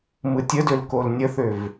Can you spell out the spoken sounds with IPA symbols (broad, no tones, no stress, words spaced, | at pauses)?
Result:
mɯtʲədøl kolnʲəθøv